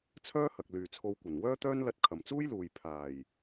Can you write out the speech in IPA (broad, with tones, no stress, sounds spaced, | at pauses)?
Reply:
t͡sʰ œː˥ h ɐ˨ k̚ l yː˨ t͡sʰ o˧ w kʷ ɐ˨˩ n w œː˥ t̪ œː˥ n l ɐ˧ t̚ kʰ ɐ˨ m t͡s uː˥ j l uː˨ j pʰ aː˨˩ j